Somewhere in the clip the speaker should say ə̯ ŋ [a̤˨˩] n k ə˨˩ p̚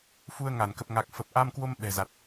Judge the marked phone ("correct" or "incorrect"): incorrect